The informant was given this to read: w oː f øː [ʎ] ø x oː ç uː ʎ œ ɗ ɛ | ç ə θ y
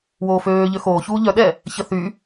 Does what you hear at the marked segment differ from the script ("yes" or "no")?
no